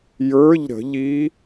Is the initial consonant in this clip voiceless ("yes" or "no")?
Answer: no